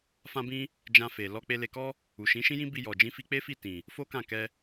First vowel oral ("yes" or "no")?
no